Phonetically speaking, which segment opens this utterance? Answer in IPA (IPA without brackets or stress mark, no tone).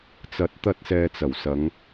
t͡s